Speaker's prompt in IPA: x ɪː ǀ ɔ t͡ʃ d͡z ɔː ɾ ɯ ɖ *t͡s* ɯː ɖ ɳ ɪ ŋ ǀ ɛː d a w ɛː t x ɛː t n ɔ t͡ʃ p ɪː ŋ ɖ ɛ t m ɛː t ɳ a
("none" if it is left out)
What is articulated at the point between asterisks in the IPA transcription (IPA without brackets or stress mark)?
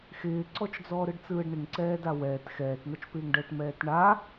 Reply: t͡s